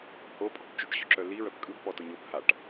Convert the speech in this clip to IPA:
hopʼɔ̤b t͡ʃʏʈɕʏǁœ liɹœp kʼɯb pɔtoɲop haʈ

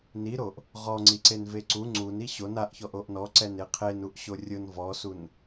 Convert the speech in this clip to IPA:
niɾoʔ | ʁɔ ŋ͡ǀiǀenveǀu ŋ͡ǀun iɕon aʔçɔʔ oʔnɔ ǀɛneqʰen uʔɕorʲʊn vɔsun

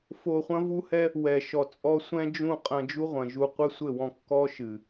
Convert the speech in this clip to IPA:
fo˧χʷɐ̃˦vu˦hɛ˦ | wɛ˨ʃɔ˨t͡sʼɔ˧ sʷɛ̃˦d͡ʒũ˦˨qʼɐ̃˧ d͡ʒu˦ʁʷɐ̃˨ʒu˧ qʷɘ˦sʷɘ˦˨wɔ̃˧ kːɔ˦ʃɨ˨

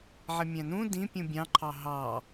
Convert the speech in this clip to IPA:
ʕɪmʲæ̃nũ dĩpʲũ bʲɑ̃ǃʰɑ ɦɑ

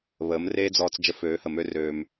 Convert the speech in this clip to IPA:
βəː˨˦mreː˦d͡zɔː˧t͡s d͡ʒə˧føː˨˦hə˨ mø˦røː˧m

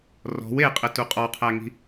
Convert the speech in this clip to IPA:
rɔ̤w eqʼɘtu qʼɔqʰæŋi̤

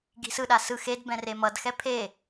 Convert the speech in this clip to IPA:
ɡi̤sɯɗa sɯ xedbɛ̃ remʌdxɛ pʰe

